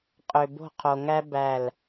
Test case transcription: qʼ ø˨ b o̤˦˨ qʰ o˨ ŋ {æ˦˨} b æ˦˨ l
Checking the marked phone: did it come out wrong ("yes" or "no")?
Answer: yes